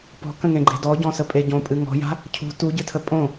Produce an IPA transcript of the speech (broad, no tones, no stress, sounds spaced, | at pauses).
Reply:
p ɔ̤ k ə̃ ŋ ẽ ɡ͡ǃ e̤ d ɔ ɟ ɔ̃ s ə pʼ e ɟ õ pʼ ɨ ŋ ɔ̤ j a̤ | cʰ ṳ t u ɟ ɨ tʰ ə pʼ õ